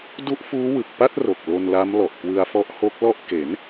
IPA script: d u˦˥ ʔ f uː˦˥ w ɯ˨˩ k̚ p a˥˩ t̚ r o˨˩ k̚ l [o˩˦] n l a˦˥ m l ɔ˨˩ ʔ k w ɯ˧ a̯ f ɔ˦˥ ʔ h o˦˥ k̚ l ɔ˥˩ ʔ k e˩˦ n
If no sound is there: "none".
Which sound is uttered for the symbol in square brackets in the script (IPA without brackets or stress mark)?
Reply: o˧